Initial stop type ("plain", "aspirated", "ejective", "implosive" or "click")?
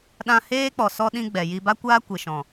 implosive